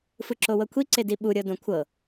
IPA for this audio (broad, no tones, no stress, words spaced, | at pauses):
fɯǁowɤkʷʰi ǀediɓu ɾʲɤdõkʷʰɤ